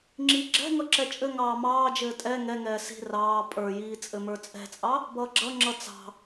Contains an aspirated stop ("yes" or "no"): no